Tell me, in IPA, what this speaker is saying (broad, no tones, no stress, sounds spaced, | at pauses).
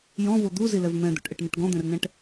j ɔ̃ v o d̪ u z i l ɛ v m ɛ̃ d̪ o̰ ʈ ʔ ɛ ʈ n ɛ ʈ ɡ ɔ̃ d̪ ɛ̃ r n ɛ̃ ʈ